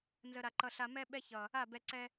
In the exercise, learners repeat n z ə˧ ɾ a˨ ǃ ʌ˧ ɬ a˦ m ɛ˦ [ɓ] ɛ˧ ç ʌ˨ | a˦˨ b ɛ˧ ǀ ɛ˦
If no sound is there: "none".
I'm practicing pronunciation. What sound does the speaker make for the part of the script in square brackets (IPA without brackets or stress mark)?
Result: ɓ